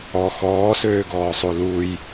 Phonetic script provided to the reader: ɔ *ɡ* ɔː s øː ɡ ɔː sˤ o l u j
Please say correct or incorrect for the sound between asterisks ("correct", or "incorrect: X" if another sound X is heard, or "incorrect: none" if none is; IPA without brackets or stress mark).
incorrect: x